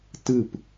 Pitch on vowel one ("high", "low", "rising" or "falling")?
falling